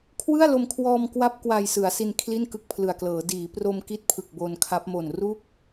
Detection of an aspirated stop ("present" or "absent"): present